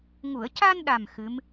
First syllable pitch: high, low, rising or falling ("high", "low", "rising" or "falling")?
low